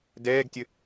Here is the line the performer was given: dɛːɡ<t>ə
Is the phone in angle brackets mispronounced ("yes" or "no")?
yes